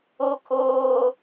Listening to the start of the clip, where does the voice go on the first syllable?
high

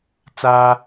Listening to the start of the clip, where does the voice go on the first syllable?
high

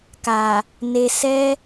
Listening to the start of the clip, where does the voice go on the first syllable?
low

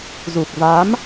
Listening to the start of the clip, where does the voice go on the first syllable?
low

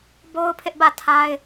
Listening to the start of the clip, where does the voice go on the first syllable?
high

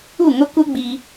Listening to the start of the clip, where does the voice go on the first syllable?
falling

